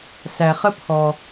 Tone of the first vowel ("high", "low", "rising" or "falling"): low